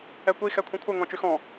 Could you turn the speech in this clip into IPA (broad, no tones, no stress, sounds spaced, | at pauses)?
ɛ kʷ i x ɛ kʷʰ ĩ kʷʰ ə ŋ ɔ̃ t͡ʃ y x ɔ̃